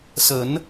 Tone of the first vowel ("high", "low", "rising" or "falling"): rising